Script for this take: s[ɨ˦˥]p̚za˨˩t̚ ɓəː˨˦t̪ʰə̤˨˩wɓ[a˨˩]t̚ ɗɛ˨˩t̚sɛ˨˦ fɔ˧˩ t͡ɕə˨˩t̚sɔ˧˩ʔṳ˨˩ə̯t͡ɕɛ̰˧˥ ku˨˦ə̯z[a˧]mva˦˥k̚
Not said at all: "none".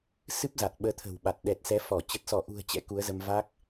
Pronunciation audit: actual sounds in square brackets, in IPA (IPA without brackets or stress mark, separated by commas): ɨ˦˥, a˨˩, ə˧